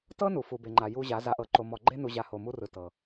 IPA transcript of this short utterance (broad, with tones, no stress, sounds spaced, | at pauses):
t ɤ˦ n u˨ f u˨ b e˨ ŋ͡ǃ a˨ j u˦ ʑ a˨˦ z a˨ ʔ ɤ˨ ǃ o˨ m ɔ˨ ɡ͡ǃ e˦ n u˨ ʑ a˨ h o˨ m u˦ r ɯ˨ t ɤ˨